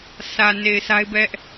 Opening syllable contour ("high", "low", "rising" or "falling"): low